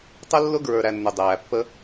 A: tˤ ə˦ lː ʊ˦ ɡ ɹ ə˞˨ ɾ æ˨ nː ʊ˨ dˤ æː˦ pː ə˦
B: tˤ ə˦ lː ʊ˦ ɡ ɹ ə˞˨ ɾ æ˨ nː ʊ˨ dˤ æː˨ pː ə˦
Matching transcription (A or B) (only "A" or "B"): B